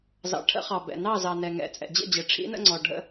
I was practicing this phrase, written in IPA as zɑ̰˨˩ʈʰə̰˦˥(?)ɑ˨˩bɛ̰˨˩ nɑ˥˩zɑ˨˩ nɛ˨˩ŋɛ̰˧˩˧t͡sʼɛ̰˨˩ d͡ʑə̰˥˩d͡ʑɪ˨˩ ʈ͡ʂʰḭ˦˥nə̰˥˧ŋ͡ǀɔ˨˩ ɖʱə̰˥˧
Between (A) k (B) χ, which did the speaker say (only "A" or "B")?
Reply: B